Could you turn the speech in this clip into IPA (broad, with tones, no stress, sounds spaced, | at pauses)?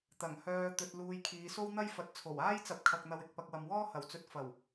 t̪ ɐ˨˩ ŋ h œː˧ t̪ ɵ˧ t̚ l uː˧ j kʰ iː˨˧ s o˥ w n̪ ɐ˥ j f ɐ˨˥ t̚ t͡sʰ o˨˩ w aː˥ j t͡s ɐ˨˥ p̚ kʰ ɐ˧ k̚ n̪ ɐ˧ w ɪ˨ k̚ p ɐ˧ k̚ w ɐ˨ m w ɔː˥ h ɐ˨˩ w t͡s ɵ˧ t̚ f ɐ˨˩ w